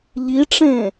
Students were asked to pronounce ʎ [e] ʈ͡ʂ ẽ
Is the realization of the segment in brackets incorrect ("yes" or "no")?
yes